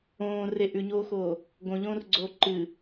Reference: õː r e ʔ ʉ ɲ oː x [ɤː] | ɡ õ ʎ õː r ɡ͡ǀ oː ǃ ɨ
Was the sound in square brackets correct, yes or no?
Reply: no